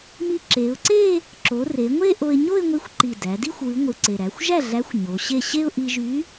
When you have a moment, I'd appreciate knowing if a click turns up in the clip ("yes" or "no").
yes